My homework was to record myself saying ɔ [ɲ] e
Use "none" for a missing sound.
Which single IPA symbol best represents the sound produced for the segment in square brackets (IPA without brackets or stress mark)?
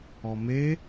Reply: m